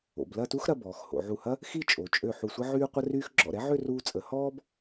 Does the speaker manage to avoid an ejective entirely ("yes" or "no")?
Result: no